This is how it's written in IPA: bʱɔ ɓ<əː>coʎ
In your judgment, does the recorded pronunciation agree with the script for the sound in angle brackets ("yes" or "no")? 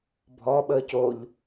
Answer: yes